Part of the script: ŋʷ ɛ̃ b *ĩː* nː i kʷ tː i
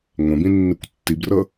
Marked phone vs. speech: incorrect: ĩ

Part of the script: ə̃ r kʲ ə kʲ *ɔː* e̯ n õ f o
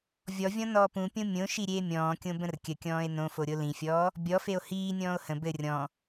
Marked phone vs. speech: incorrect: ɔ̃ː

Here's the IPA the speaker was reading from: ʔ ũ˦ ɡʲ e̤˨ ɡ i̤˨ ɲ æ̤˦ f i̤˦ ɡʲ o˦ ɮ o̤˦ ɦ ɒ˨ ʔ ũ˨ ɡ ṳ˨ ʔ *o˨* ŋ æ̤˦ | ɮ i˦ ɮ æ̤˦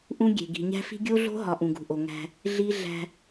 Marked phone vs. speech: correct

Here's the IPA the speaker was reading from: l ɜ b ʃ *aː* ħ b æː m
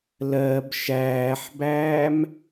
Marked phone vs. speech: incorrect: æː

